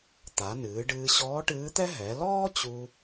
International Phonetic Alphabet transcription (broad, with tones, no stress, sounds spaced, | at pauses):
t̪ a˩˧ n ɨː˩˧ ɖ ɨː˧ ɕ ɔː˧˥ ʈ ɨː˧˥ t̪ ɛ˥ ɦ ɛ˩˧ l ɔː˥ t͡ɕ u˧